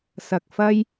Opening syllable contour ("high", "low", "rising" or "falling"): low